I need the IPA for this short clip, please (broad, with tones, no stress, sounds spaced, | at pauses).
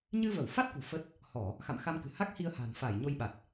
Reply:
ɲ ɨ˧ v ə˧˩ w f a˦˥ t̚ k ṳ˨˩ f ə˦˥ t̚ | h ɔ˧˩˨ | x a̰˧˨ m x a˧ m k ɨ̤˨˩ h a˦˥ k̚ h i˧ ə̯ h a̤˨˩ n f aː˧˩ j ɲ o˧ j ɓ a˨˩ t̚